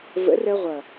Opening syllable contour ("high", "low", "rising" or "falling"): rising